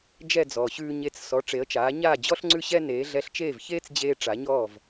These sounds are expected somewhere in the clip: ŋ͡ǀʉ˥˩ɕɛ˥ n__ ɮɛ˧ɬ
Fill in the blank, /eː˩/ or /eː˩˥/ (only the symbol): eː˩˥